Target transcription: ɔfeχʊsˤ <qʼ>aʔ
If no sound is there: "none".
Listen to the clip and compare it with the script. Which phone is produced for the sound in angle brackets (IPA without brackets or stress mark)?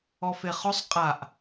qʼ